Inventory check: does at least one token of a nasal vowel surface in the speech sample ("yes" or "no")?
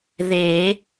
no